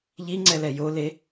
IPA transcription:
ʎ i ŋ͡ǀ ɛ l ɛ j o l e

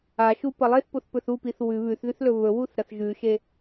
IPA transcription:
a ʃ u p ɐ lˠ e θ p o θ p ɵ θ u p i θ w ʉ β ʉ θ ð ʉ θ l ɵ β ɵ w u θ ɾ ɐ θ ʒ ʉ ʃ e

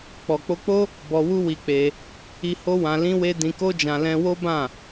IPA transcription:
k͡p ɔ˨ k͡p o˧ k͡p o˦ | b ɔ˧ w u˦ w i˧ k͡p e˧ | i˧ h o˦ w ã˧ l ĩ˦ w e˦ d ĩ˧ k o˦ d͡ʒ ã˧ l ɛ̃˧ w o˦ b ã˦˨

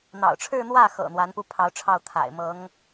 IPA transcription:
n̪ ɑ̰˨˩ ʊ̯ ʈ͡ʂʰ ɻ̩˥˧ n̪ w ä˥˩ x ɤ̰˨˩ n̪ w a˧˥ n p u˥˩ pʰ ɑ˧˥ ʊ̯ ʈ͡ʂʰ ɑ˥˩ ʊ̯ t̪ʰ a̰˨˩ ɪ̯ m ɤ˧˥ ŋ

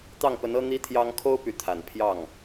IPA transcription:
t̪ ɑ˥˩ ŋ p ə˧˥ n ɤ˥ n̪ i˥ t̪ʰ j ɑ˥ ŋ kʰ o˥ ʊ̯ p y˧˥ t̪ʰ a˨˩ n pʰ j ɑ˥˩ ŋ

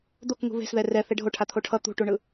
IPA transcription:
d̪ o k ŋ ṳ β e̤ s ð ɛ r ɛ θ e ɖʱ o ʈʰ a t̪ʰ o ʈʰ ʌ t̪ ṳ ʈ u ɳ ɯ

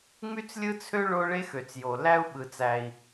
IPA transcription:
ŋ͡m y˦ t͡s lʲ ɯ˦ t͡sʰ ø˦ ɭ o˦ ɭ e˦ x ø˨ t͡s j o˨ l æ˦ u̯ ɓ ɯ˨ t͡s æ˨ i̯

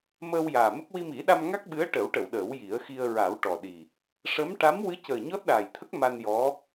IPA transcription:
m əː˧ w j aː˨˩ m ə˦˥ k̚ w i˧ m i˨˩˦ ɗ a˧ m ŋ a˦˥ k̚ ɓ ɨ˧˥ ə̯ ʈ ə˨˩˦ w ʈ ə˨˩˨ w ɗ əː˨˩˦ w j i˨˩˦ ə̯ x i˧ ə̯ ɹ a˨˩˦ w ʈ ɔ˨˩ ɗ i˨˩ | ʂ ə˧˥ m ʈ a˧˥ m w ɨ˧˥ c əː˨˩ ɲ ɔ˦˥ t̚ ɗ aː˨˩ j t̪ʰ ə˦˥ k̚ m a˧ n j ɔ˧˥

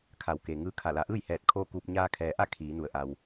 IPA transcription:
kʰ a˩˧ w k eː˩ ŋ ɯː˧˥ kʰ a˧˩ l a˩˧ ʔ ɯː˥˨ j h ɛː˧˩ t̚ kʰ oː˥˨ k uː˧ p̚ ɲ aː˧ kʰ ɛː˩ ʔ a˥˨ kʰ iː˩˧ n u˩˧ ə̯ ʔ a˩ w

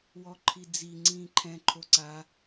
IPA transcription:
w ɔ ǃʰ i d͡z i ŋ͡ǀ ĩː ǃʰ ɛ̃ ǃʰ o ǀ a

